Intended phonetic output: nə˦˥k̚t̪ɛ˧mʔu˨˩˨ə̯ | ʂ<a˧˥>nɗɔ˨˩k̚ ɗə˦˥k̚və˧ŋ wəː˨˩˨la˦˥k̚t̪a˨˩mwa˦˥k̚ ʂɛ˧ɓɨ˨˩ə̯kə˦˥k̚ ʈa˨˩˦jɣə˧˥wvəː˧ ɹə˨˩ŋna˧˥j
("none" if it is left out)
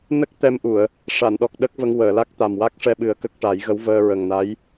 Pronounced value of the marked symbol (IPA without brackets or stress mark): a˨˩˨